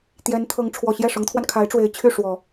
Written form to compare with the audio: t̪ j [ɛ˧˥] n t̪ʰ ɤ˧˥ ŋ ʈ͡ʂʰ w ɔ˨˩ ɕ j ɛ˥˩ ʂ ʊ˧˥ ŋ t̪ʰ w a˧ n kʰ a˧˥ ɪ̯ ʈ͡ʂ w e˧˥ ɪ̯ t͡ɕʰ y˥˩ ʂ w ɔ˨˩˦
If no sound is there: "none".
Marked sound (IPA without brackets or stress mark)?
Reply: ɛ˧˥